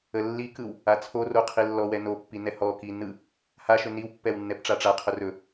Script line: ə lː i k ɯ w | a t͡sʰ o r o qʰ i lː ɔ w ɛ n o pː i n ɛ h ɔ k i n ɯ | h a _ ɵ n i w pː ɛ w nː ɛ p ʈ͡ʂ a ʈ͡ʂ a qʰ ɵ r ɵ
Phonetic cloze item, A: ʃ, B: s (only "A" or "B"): A